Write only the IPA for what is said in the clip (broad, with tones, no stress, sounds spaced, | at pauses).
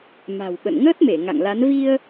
m a̤˨˩ w ɓ ə̰˧˨ n ŋ əː˦˥ t̚ m e˧˩ ŋ a̰˧˨ ŋ l a˨˦ n v i˧ ə̯